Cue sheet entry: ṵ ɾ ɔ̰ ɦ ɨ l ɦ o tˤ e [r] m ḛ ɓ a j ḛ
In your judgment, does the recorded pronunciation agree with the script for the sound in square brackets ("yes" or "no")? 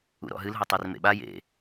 yes